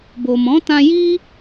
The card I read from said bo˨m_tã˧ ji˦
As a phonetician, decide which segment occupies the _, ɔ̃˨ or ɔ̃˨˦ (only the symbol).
ɔ̃˨˦